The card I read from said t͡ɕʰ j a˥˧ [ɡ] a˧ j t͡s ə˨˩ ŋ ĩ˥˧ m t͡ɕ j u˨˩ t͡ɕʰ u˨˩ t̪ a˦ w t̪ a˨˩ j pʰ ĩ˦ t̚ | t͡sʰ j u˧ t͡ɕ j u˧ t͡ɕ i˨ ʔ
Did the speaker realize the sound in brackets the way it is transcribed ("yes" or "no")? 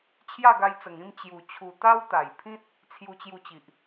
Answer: yes